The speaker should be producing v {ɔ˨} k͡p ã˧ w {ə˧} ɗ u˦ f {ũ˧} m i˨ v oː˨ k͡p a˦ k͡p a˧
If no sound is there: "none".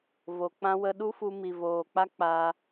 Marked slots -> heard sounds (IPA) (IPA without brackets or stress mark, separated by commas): o˨, ə˧, u˧